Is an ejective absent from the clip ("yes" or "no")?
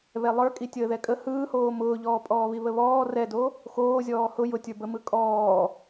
no